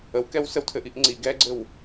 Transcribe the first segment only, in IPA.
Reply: ə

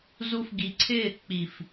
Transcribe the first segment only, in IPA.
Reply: z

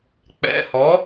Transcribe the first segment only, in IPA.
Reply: k͡p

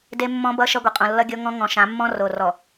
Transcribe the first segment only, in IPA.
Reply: d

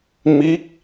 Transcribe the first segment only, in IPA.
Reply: m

